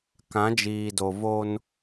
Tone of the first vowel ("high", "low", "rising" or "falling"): rising